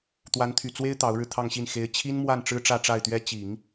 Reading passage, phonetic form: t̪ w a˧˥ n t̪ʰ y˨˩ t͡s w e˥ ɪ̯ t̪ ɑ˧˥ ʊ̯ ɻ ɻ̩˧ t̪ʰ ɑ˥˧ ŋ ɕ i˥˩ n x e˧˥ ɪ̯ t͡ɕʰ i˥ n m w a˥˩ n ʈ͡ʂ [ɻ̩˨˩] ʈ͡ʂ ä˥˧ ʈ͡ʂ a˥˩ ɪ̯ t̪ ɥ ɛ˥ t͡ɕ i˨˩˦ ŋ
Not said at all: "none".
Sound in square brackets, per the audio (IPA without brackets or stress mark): ɻ̩˥